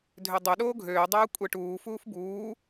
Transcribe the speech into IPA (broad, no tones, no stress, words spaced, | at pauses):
dʱødˤø ɗoːɡʱøː dˤoːkʷʼeʈuː fuːfbuː